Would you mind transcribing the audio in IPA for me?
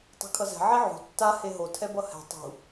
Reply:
tˤ ṳ kʰ ʌ z ɛ̤ ʕ i ʕ ṳ tː a h e ɦ o tʰ ɛ b ʌ h ɛ̤ tˤ ṳ

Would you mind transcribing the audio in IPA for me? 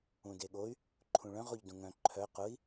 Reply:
ũ d e ɠ o y̯ | ǃʰ ũ ɭ œ̃ ʁ o ʎ d ũ ŋ œ̃ ǃʰ œ q ʊ i̯

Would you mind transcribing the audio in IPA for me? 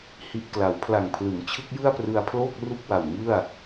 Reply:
h i˨˩ ʔ k l a˩˦ w pʰ l a˨˩ ŋ pʰ l ɯ˩˦ ŋ t͡ɕʰ ɯ˦˥ k̚ j ɯ˥˩ a̯ p r ɯ˧ a̯ pʰ l oː˥˩ k̚ r u˥˩ k̚ w a˨˩ w ŋ ɯ˥˩ a̯

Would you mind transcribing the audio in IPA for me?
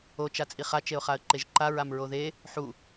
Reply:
o t͡ʃ a t͡sʼ i χ a t͡ʃ e ʊ̯ χ a ə̯ ǃ e ʒ ǃ a ɹ a m ɹ o ð e | ħ u

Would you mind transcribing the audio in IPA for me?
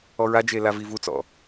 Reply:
ɔ ɹ a d͡ʒ e l a v i v u t͡s ɔ̰

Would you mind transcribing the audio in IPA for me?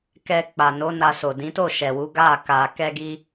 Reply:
k ɛ˧ k͡p a˨ n o˨˦ n a˧ s o˨ d ĩ˨˦ t o˦˨ ʃ ɛ˨ w u˨˦ ɡ a˦˨ k a˧ k ɛ˧ ɡ i˧

